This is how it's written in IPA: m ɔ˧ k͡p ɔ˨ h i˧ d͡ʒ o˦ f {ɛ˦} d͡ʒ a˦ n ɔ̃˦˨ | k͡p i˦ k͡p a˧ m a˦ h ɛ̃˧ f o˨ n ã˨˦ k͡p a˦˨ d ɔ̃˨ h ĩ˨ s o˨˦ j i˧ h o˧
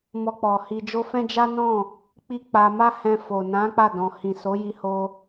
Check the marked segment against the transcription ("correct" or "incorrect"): incorrect